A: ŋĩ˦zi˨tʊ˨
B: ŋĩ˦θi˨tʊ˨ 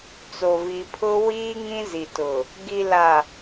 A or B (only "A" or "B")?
A